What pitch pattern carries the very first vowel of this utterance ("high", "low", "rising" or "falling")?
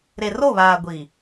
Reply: low